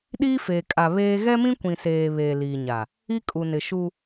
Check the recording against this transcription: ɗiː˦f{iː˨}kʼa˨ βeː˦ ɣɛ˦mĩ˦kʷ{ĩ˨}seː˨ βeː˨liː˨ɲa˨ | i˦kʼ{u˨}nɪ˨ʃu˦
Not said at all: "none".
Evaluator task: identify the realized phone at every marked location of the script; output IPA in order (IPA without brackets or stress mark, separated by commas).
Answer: eː˨, ĩ˨, u˨